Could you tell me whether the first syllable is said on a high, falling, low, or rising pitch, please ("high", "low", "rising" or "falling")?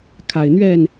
low